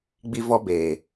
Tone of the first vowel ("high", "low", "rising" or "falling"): high